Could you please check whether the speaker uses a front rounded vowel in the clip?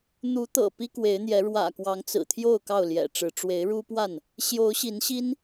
no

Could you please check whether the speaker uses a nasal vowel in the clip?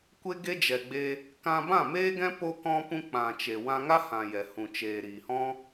yes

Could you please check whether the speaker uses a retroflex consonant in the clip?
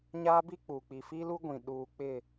no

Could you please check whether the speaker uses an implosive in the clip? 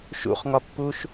no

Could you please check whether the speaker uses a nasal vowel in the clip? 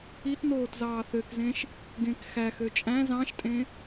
yes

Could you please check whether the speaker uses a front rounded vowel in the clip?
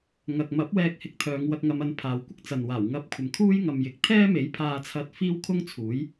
yes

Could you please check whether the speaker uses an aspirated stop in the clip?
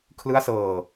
yes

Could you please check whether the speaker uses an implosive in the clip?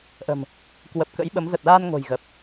yes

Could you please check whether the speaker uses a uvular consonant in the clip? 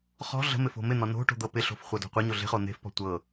yes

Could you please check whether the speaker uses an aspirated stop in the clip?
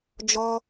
no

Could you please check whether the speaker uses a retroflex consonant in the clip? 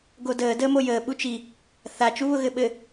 no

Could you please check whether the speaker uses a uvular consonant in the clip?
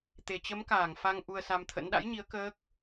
no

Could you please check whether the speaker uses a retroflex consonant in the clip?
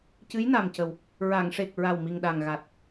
yes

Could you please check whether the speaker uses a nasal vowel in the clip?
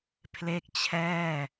no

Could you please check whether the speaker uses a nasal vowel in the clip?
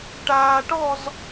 no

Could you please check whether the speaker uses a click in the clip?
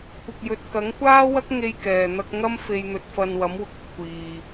no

